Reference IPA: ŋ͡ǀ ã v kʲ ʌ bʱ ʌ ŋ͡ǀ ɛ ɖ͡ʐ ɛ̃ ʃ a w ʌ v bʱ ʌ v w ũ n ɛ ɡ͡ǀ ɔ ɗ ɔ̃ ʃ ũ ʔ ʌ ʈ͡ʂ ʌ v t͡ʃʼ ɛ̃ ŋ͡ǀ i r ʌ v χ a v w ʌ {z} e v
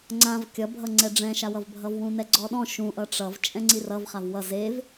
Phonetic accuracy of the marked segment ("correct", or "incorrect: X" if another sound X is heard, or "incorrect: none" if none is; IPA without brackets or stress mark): correct